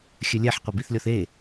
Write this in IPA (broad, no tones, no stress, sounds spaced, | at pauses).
xʲ ɘ lʲ ɛ ħ qʷ ɐ b i θ lʲ ɔ θ e